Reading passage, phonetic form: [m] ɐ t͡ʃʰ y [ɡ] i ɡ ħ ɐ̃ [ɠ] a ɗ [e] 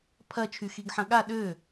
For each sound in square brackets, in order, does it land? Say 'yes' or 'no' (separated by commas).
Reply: no, no, yes, no